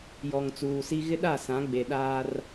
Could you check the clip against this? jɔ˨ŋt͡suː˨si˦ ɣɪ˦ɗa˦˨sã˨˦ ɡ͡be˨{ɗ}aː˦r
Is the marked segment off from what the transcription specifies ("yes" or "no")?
no